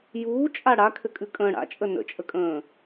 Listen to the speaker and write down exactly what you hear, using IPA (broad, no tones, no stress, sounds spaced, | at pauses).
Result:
j uː t͡ʃʼ a ɽ a kʰ ɘ kʼ ʉ kʼ ə̃ː ɽ a̰ t͡ʃʼ ə n ə̰ t͡ʃʼ ə kʼ ə̃ː